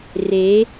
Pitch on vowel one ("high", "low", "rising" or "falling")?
rising